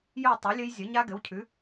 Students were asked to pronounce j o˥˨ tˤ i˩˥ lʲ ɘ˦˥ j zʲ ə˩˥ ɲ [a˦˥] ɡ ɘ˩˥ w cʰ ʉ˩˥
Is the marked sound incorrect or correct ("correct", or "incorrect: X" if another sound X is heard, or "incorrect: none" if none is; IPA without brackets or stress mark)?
correct